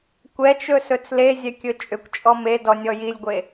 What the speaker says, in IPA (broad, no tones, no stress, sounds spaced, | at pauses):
kʷ ɛ t͡ʃ ɵ s ɵ t͡s l e zʲ ɛ kʲ ɵ t͡ʃʼ ʏ kʷ t͡ʃʼ ɔ m e d ɔ nʲ ɔ j i lʲ ɡʷ e